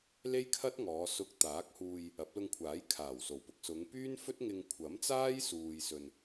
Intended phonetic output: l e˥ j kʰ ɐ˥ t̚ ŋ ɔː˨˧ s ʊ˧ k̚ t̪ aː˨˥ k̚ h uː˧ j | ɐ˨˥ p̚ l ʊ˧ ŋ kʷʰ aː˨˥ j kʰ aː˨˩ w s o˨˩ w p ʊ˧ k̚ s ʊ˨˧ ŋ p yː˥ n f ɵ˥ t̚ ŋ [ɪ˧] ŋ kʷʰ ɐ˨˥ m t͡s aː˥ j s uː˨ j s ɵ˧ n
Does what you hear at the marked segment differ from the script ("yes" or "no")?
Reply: no